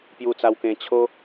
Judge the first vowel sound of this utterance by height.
high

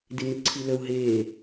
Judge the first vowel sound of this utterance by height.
high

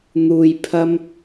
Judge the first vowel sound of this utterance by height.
high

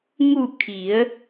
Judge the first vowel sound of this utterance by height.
high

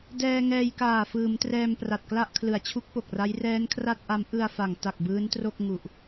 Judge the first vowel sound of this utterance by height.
mid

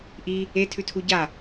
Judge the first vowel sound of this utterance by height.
high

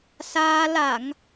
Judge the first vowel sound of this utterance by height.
low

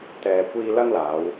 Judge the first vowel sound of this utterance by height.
mid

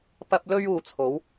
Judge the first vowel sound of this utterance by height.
low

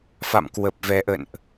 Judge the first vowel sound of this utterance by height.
low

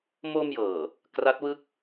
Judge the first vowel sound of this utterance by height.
mid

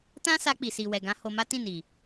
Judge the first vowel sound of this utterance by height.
low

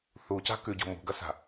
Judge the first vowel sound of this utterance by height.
high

